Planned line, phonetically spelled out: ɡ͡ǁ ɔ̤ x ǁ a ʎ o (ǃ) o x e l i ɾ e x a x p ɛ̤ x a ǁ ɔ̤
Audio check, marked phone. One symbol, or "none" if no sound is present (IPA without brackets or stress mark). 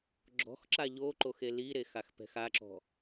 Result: ǃ